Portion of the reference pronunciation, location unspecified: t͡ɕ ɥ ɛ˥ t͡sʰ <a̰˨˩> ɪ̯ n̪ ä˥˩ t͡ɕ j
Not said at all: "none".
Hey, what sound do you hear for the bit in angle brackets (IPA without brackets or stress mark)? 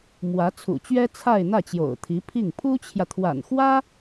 a˥˧